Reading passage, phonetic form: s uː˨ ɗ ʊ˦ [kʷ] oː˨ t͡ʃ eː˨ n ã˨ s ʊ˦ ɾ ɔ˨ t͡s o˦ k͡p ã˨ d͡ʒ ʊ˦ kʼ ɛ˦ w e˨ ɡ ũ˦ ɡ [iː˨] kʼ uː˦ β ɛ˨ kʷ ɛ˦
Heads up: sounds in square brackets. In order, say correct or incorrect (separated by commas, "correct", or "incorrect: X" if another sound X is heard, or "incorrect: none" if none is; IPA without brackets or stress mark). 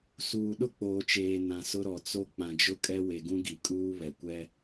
incorrect: k͡p, incorrect: i˨